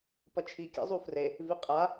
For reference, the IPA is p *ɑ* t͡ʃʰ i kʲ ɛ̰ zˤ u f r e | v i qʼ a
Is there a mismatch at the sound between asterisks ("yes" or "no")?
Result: yes